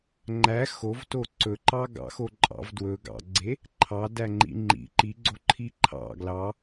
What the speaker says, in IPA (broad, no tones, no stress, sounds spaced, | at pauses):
ŋ͡ǃ æ x o v t o ǀ ɵ ǃ ɑ ɡ ɑ̰ x o ǃʼ ɑ̰ v d w ɵ ɡ ɑ̰ ɡ͡ǀ e | ǃʰ ɑ d æ ŋ͡ǃ ḭ ŋ͡ǃ ḭ ǃ i ɡ͡ǀ o ǃʰ i ǃʰ ɑ̰ ɡ l ɑ